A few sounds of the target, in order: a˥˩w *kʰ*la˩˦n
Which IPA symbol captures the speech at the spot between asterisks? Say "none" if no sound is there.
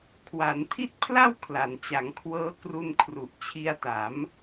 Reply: kʰ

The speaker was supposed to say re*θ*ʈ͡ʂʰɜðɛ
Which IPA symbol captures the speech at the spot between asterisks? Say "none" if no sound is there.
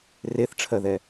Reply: θ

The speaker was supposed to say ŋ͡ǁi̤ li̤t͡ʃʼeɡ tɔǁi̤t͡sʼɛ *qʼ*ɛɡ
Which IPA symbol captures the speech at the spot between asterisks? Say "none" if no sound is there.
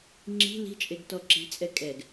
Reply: kʼ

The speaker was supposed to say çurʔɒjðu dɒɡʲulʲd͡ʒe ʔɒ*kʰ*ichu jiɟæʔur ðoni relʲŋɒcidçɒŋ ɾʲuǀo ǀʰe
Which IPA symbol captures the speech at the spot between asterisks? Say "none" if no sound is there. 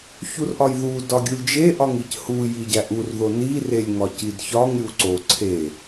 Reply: ŋ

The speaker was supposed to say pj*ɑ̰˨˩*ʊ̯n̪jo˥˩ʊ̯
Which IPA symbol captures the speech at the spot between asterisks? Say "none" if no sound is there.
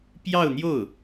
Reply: ɑ˥˧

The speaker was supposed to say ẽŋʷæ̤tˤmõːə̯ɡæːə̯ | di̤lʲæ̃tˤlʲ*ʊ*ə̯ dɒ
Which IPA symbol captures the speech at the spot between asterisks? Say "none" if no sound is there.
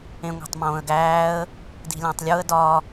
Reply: u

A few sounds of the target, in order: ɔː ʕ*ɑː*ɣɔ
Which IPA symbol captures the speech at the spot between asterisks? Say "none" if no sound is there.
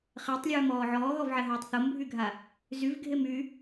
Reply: ɔː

